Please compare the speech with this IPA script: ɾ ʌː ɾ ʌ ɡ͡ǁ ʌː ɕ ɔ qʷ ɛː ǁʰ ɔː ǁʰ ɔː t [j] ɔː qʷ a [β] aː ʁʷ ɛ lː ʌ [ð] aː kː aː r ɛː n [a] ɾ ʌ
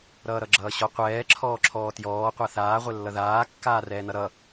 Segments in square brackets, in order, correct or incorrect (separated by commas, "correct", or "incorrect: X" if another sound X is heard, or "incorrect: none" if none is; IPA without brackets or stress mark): correct, incorrect: θ, correct, incorrect: ʌ